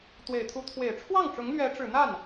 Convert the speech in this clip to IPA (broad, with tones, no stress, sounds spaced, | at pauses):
t̪ w e˨˩ ɪ̯ t̪ʰ u˧˥ t̪ʰ w e˨˩ ɪ̯ ʈ͡ʂʰ w ɑ˥˩ ŋ ʈ͡ʂ ʊ˧˥ ŋ l ɥ ɛ˧˥ ʈ͡ʂ ɻ̩˨˩ n̪ a˥˩ n